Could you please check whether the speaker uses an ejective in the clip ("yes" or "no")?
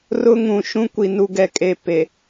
yes